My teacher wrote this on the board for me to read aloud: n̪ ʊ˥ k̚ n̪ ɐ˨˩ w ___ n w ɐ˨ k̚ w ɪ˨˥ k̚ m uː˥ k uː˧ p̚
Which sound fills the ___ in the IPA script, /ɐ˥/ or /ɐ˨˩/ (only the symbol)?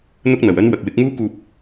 ɐ˥